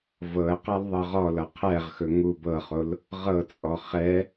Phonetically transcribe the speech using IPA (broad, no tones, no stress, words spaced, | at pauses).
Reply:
vɤə̯qal ðˤɤʁɔlʌ qʰɛʁxɵ ŋu bɤχol | ʁɤt͡sʼɔ χɛ